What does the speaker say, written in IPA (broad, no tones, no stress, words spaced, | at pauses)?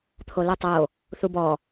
t̪ʰolutˤo | θubɔ